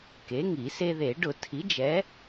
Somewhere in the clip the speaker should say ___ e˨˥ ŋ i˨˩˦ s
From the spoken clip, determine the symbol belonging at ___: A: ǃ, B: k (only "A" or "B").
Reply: B